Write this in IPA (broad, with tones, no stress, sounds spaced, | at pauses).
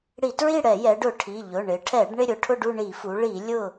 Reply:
ɽ i˧˩˧ t ɹ i˥˨ ɽ ɛ˧˩˧ j ɛ˩˧ ɖ ʊ˧˩˧ ʈʰ i˩˧˩ ʎ ʊ˩˧˩ ɳ ɪ˩˧ ʈʰ ɛ˧˩˧ ɖ ɳ ɪ˥˨ ɾʲ ʊ˩˧ ʈʰ ʊ˥˨ ɖ u˥˨ ɳ i˧˩˧ f u˩˧ ɭ i˧˩˧ lʲ ʊ˥˨